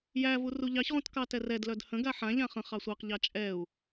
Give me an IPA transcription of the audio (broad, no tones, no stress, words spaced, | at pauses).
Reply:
jævu ruʎɑçʁũt kɑtɛrɛdlœd hə̃ɡa ħãʎã χə̃χ ɑsʷɑqʎɑ t͡ʃʼɛu̯